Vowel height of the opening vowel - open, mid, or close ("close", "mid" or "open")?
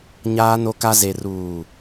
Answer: open